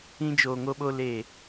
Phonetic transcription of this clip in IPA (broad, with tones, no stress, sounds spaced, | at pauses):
ĩ˦ d͡ʒ o˨ ŋ o˦ ɓ o˦ l e˦˨